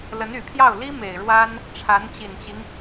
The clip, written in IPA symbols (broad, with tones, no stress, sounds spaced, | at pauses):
l ə˧˥ n y˨˩ pʰ j ɑ˥˩ ʊ̯ l i˥ m e˨˩ ɪ̯ ɻ w a˥ n | ʈ͡ʂʰ a˧˥ n t͡ɕ i˨˩ n t͡ɕ i˦ ŋ